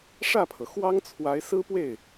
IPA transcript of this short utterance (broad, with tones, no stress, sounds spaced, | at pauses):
ʂ ä˥˩ pʰ ɤ˩ x w ɑ˥ ŋ t͡sʰ w a˧˥ ɪ̯ s ɹ̩˥ p w e˥˩ ɪ̯